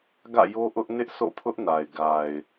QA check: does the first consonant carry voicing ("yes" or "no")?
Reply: yes